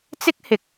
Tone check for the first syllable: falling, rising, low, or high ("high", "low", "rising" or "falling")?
high